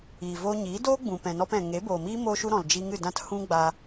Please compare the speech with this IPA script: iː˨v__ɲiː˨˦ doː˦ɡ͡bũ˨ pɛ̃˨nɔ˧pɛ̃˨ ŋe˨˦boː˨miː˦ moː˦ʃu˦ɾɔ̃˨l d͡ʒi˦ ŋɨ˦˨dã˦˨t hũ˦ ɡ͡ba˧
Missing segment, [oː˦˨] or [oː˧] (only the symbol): oː˧